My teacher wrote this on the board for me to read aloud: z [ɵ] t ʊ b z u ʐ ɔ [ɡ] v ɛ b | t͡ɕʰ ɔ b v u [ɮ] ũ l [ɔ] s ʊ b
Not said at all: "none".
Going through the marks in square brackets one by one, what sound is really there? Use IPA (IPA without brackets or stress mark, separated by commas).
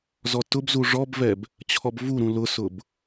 ɔ, b, ɾ, ʊ